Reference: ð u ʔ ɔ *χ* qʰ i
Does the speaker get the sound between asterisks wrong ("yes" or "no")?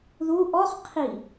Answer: no